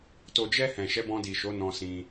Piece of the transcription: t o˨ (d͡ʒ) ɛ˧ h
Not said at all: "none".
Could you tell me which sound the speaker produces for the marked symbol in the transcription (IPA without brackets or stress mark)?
d͡ʒ